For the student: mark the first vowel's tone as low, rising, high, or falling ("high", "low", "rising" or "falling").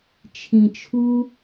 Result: low